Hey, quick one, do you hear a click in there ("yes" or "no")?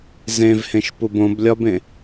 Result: no